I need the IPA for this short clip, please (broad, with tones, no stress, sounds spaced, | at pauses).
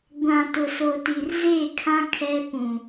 ɡʷ ã˨ t ʊ˨ s o˨ t i˨ r z e˦˨ kʰ ã˦ kʰ ɛ˦ p ũ˨